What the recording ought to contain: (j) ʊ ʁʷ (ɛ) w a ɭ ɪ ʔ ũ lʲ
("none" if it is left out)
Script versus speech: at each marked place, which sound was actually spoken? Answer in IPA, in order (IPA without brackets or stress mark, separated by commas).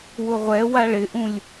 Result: w, ɛ